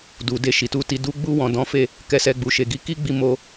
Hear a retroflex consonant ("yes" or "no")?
no